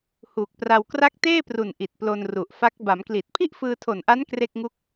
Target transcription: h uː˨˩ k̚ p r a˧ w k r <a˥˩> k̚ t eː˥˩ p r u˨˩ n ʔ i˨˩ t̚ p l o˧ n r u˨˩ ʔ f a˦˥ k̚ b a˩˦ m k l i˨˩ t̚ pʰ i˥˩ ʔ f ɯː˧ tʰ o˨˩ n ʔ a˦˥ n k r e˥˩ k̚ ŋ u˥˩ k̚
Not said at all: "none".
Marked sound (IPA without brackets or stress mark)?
a˥˩